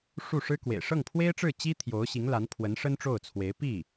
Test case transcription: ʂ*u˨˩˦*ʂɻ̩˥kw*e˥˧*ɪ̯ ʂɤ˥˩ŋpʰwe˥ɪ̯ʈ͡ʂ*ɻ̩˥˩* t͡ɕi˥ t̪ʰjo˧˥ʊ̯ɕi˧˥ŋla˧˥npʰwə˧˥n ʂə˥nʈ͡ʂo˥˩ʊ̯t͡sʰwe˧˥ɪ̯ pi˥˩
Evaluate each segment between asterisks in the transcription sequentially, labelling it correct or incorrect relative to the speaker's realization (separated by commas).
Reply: incorrect, incorrect, correct